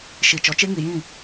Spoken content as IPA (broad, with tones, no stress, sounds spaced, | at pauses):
ʃ i˨ t͡ʃ ɔ˨ t͡ʃ e˦ ŋ i˨ j ĩ˦˨